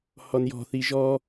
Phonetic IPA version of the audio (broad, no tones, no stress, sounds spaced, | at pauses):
h ɔ n j ɔ̤ θ i ʒ ɔ